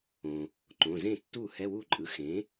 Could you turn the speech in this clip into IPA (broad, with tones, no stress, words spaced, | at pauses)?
õ˩ | ǃõ˩˧˩zẽ˥˩tːu˥˩ hɛ˧˥˧wu˥˩ǃʼɯ˩˥ xẽ˩˥